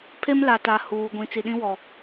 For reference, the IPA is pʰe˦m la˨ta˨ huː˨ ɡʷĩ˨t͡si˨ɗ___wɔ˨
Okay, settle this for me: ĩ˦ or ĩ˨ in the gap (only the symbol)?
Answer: ĩ˦